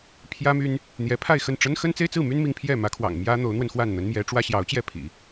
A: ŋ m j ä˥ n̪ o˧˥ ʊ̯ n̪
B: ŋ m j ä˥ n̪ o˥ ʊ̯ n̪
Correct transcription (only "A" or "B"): A